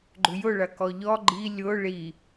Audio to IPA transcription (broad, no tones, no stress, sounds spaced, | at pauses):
ɡ͡ǃ ʏ j ʊ ɭ ɐ k ɔ ʎ ɔ ɡ͡ǃ i lʲ ʊ ɭ i